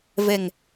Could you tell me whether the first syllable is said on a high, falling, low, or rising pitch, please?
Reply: low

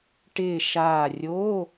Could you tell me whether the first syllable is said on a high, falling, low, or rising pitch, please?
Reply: falling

